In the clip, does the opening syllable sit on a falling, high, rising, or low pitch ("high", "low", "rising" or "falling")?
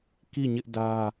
falling